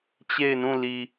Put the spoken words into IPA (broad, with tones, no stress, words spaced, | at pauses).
t͡ɕe˦˨ɪ̯nũ˦˨li˨